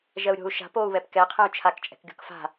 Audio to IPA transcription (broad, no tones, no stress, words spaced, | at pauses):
ʒɜu̯ɾʲo̤u̯ ʃa̤p oːu̯βɛpkɛ qʰɛ̃u̯t͡ʃʰak t͡ʃʼɛ̤kɡʲo̤kfa̤